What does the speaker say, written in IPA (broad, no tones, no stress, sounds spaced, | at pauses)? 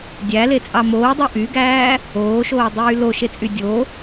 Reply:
dʲ æ l e t͡sʼ ɑ m oː dˤ o ʔ y ɡ æː | oː ʃ oː dˤ yː l o ʃ e t͡sʼ y dʲ o